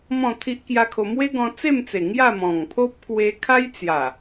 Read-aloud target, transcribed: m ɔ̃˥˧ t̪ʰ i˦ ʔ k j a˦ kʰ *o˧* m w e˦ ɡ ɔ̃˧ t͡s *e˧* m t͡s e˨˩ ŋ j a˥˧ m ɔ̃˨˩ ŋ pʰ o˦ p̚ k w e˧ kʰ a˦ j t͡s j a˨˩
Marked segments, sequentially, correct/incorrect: correct, incorrect: e˥˧

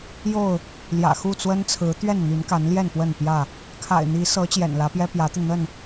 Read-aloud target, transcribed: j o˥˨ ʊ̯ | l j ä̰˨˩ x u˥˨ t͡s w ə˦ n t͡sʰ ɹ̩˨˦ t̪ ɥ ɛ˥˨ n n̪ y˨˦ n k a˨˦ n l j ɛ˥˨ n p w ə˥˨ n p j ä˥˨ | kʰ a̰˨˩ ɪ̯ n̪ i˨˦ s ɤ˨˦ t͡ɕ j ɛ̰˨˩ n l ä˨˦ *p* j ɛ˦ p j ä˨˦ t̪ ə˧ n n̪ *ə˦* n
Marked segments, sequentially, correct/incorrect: correct, incorrect: ə˥˨

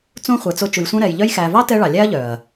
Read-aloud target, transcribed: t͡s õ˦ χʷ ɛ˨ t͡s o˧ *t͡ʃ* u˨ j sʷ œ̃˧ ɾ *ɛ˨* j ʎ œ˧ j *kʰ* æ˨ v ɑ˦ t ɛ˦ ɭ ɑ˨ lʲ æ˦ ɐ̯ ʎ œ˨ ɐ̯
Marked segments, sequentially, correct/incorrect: correct, correct, incorrect: x

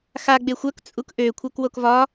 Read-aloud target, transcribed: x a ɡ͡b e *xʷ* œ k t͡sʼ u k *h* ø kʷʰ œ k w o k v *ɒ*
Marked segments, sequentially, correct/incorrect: correct, incorrect: ʔ, correct

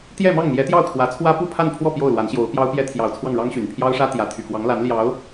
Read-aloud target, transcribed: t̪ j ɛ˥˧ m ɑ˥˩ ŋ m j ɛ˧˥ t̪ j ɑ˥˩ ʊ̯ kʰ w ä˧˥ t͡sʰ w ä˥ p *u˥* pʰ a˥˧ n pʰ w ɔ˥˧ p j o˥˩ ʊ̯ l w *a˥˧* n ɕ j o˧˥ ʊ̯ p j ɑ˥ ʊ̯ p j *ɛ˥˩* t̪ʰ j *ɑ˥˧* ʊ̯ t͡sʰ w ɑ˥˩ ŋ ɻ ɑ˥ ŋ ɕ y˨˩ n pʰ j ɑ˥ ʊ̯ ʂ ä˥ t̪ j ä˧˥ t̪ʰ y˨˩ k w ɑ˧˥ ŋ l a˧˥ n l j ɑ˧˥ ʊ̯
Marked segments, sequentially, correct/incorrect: incorrect: u˥˧, incorrect: a˧˥, incorrect: ɛ˥, incorrect: ɑ˨˩

